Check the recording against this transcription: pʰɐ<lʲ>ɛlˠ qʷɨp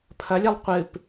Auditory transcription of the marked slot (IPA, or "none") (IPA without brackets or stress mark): lʲ